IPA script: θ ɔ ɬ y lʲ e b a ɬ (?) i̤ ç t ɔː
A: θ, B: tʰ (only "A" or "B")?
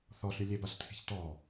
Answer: B